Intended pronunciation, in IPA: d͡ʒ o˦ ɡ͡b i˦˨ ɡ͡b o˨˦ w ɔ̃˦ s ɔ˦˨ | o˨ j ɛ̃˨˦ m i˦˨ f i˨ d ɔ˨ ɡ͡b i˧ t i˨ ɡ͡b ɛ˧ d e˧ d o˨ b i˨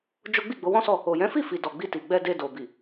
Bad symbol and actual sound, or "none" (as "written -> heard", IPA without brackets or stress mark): m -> f